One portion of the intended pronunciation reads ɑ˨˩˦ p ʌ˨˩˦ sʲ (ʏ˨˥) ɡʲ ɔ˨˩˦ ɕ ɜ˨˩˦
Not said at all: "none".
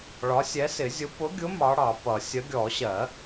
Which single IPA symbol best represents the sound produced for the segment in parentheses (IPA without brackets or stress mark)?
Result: ə˨˥